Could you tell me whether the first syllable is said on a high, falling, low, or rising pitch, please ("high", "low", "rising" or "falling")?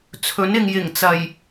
rising